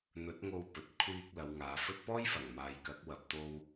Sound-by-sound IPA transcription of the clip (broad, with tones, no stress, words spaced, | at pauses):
n̪ɵ˨˥t̚ŋo˧wpɵ˨t̚ kʷʰiː˧k̚ lɐ˨˧wŋaː˨˧fɵ˥t̚ pɔː˥jfɐ˨˩ŋmaː˨j kɐ˨˥k̚wɐ˨p̚t̪o˧w